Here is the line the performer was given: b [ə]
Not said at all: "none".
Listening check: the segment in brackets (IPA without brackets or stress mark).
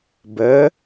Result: ə